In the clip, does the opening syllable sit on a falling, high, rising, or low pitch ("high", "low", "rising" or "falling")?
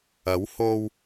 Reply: rising